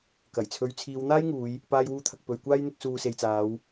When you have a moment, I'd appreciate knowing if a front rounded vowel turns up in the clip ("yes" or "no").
no